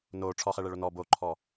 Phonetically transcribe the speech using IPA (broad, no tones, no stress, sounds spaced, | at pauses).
n o ʈ͡ʂʰ ɔ χ ɛ ɭ ɛ ɭ o n ɔ b o ǃʰ ɔ